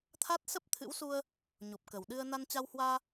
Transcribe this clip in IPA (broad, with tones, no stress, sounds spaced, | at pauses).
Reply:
t̪ʰ a˦˥ t̚ s ə˦˥ p̚ t̪ʰ ɨ̰˧˥ w s u˧ ə̯ | ɲ o˨˩ p̚ k ə˨˩ w ɗ ɨ˧ ə̯ n a˧ n t͡ɕ a˧ w h w aː˧